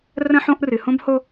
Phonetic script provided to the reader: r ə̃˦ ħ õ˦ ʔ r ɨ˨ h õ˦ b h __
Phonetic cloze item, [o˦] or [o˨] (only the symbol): o˦